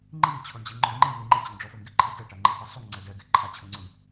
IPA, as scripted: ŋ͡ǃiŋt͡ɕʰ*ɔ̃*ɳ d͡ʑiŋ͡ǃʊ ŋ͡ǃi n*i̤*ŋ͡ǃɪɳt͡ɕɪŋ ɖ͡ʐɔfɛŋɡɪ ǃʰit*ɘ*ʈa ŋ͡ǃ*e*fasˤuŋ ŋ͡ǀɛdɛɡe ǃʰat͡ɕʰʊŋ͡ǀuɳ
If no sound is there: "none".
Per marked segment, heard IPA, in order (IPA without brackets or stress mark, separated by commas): ɔ, i, ɛ, e